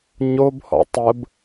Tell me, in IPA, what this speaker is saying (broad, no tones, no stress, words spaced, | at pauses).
ɲobhɔ̰ tˤəb